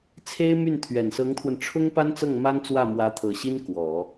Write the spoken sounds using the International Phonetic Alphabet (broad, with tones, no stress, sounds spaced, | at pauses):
t͡sʰ e˥ ɪ̯ m y˥˩ n t̪ʰ ɥ ɛ˨˩ n s ɤ˧˥ ŋ t̪ʰ w ə˧ n ʈ͡ʂʰ ʊ˥ ŋ p a˥ n t͡s ɤ˥˩ ŋ m a˥ n t͡s w ä˥˩ m w ä˧˥ t̪ʰ ɤ˨˩ ɕ i˥ n k w ɔ˨˩˦